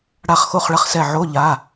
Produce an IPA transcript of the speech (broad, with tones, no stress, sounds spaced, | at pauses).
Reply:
ɽ a˦˨ χ x o˦˨ χ ɭ ɐ˦˨ χ s ɛ˦˨ ʕ o˧˥˧ ʎ a˩˧˩